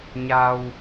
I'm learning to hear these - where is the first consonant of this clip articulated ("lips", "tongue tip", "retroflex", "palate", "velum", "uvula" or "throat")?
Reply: palate